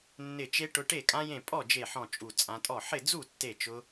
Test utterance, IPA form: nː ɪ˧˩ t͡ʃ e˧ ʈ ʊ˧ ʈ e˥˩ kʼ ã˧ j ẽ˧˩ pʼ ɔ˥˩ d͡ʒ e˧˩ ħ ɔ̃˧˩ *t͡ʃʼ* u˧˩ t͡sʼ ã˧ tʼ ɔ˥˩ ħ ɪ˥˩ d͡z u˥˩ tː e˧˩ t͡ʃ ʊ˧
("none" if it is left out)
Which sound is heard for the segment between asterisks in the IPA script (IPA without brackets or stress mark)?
t͡ʃʼ